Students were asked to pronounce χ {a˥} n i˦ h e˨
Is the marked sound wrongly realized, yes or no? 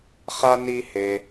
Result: no